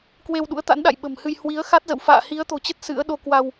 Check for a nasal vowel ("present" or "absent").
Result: absent